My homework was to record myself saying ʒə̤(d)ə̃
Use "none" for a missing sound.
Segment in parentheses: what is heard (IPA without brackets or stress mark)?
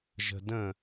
d